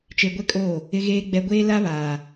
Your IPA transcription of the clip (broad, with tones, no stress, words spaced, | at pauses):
t͡ʃe˨ ɡʷɛ˦kʼoː˦˨ | ɪ˨ɣeː˨ɡ͡bɛ˨ ɡʷeː˦ la˦βaː˨